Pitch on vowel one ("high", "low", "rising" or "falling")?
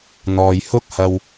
low